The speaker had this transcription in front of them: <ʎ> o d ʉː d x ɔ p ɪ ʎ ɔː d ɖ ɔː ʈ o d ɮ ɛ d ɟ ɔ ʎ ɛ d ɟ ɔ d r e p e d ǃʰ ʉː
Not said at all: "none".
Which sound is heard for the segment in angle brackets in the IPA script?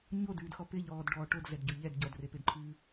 ɲ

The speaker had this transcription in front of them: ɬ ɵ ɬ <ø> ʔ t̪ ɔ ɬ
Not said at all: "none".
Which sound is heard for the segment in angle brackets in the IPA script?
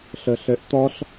ø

